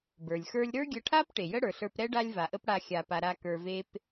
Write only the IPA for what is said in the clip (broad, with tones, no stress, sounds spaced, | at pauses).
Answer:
b ə˞˩ lʲ x ə˞˧ lʲ ɾ ə˞˥ ɡʲ ə˧ ʈʰ a˥ p ʈ e˩ j ə˥ ɽ ə˞˩ ɬ ə˞˧ p ɾ ɛ˥ ɖ a˧ lʲ v a˩ ʔ ə˧ p ɽ a˧ xʲ a˩ p a˩ ɾ a˧ k ə˞˧ v e˥ p